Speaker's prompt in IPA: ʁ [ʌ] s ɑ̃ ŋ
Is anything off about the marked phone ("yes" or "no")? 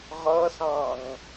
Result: no